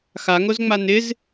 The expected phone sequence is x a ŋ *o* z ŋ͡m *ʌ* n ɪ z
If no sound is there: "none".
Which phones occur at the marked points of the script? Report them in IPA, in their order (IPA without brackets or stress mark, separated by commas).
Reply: o, a